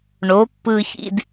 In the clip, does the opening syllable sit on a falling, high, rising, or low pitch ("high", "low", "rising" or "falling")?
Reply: rising